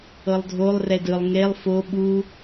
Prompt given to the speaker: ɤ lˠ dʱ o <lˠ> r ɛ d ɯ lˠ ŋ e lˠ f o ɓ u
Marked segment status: correct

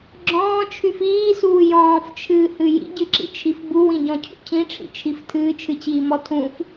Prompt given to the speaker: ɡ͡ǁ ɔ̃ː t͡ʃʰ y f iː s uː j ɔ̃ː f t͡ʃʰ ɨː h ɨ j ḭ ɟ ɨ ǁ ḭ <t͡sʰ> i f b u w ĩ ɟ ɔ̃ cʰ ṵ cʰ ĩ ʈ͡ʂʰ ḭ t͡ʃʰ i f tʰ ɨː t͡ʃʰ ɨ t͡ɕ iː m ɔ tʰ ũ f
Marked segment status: incorrect: t͡ʃʰ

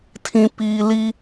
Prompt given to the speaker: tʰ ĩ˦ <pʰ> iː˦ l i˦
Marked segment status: incorrect: p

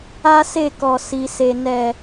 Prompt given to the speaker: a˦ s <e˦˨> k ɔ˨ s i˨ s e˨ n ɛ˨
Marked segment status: correct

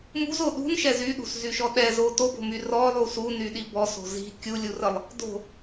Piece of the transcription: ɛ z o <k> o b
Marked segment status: incorrect: t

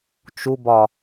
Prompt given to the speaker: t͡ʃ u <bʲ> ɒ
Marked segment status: incorrect: b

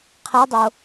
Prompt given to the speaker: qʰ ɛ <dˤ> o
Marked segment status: correct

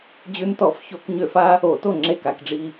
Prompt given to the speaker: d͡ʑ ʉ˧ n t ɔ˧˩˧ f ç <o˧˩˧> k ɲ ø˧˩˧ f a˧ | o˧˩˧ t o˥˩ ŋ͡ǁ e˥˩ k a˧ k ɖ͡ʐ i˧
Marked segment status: correct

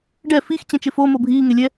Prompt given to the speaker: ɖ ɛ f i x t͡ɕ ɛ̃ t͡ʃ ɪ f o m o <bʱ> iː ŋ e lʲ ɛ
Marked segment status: correct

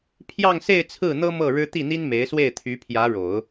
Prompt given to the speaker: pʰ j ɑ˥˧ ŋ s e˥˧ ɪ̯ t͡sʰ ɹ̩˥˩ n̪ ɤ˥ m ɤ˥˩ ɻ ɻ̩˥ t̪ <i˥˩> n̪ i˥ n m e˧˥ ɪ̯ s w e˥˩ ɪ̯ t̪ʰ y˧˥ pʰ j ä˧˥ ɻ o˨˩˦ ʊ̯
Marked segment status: correct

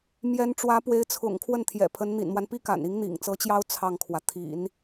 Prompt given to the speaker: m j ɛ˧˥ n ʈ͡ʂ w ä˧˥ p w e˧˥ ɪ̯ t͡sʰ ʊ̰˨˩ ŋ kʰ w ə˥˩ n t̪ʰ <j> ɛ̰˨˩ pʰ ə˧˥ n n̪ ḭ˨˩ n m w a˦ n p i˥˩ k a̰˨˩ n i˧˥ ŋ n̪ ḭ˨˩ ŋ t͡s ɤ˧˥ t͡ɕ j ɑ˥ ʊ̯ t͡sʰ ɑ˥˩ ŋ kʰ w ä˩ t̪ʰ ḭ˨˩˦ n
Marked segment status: correct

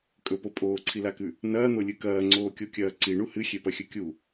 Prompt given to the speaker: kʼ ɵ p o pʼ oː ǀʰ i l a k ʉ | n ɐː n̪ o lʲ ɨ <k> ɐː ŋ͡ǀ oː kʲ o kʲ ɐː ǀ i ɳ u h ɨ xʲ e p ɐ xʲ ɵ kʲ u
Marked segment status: correct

